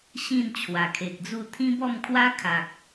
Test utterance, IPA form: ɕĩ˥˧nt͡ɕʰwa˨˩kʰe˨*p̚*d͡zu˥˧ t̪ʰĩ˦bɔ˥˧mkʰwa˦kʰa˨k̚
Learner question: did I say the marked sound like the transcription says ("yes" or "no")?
no